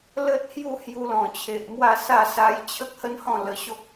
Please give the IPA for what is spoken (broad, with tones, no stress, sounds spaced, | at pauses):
l ə˦ t̚ h j u˥˧ h j u˧ l ɔ̃˨˩ t͡ɕʰ e˨ ʔ m w a˥˧ s a˥˧ s a˧ j t͡ɕʰ ə˦ k̚ h ə˦ n h ɔ̃˥˧ l ə˧ ɕ o˦ k̚